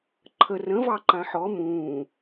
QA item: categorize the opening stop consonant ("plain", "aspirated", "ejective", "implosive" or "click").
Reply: click